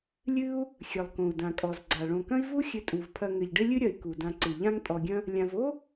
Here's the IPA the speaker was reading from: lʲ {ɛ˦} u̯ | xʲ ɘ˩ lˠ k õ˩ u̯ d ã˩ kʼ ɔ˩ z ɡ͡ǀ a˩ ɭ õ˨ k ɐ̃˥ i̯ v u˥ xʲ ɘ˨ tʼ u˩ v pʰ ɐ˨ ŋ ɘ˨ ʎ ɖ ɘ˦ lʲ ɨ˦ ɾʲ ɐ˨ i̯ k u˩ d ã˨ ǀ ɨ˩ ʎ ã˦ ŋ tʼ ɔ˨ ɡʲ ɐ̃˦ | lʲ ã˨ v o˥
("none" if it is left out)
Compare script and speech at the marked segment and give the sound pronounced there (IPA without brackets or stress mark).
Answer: ɨ˦